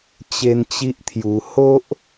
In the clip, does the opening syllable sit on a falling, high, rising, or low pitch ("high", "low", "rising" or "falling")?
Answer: high